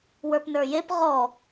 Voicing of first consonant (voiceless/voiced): voiced